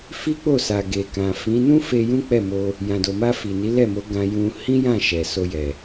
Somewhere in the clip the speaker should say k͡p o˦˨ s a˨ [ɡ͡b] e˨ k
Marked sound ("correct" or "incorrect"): incorrect